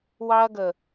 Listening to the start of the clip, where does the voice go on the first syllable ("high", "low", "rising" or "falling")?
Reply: high